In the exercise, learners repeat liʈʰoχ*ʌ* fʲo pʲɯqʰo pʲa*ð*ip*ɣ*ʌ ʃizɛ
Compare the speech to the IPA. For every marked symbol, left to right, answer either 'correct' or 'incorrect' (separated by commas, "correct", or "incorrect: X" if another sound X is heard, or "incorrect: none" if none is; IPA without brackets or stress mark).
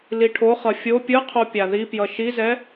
correct, correct, incorrect: j